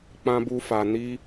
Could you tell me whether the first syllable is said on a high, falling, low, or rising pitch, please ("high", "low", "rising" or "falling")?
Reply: high